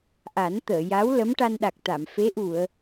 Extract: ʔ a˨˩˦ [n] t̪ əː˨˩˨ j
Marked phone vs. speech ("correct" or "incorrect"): correct